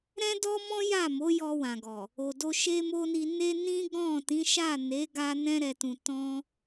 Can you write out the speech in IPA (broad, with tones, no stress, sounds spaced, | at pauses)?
ɾ ɛ̃˦ d ɔ˦ m ɔ̃˦ j a˦˨ m o˨˦ j ɔ˧ w ã˨ ɡ ɔ˨ | o˨ d o˧ ʃ e˦ m o˦ n i˧ n e˧ n ĩ˦ ɡ ɔ̃˦˨ t ĩ˨˦ ʃ a˦˨ n e˨˦ ɡ a˧ n ɛ̃˧ ɾ ɛ˨ t ũ˨ t ɔ̃˧